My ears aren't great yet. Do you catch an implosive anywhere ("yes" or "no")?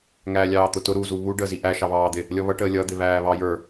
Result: no